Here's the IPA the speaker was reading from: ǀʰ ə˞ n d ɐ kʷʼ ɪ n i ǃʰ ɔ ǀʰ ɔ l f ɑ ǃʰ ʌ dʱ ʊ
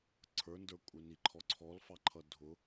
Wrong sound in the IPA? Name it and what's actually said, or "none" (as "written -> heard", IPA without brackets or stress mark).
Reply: ɐ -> ə˞